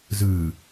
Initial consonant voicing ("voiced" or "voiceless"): voiced